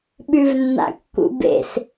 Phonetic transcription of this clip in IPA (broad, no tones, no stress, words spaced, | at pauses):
ɓʉvnːa̰kːṵbḛs